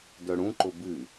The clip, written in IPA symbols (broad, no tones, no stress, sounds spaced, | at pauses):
d œ ɽ ũ ǃ ʊ b ɨ